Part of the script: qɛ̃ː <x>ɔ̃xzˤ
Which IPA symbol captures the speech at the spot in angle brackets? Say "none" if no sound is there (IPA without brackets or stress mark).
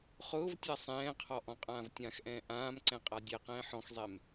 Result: ħ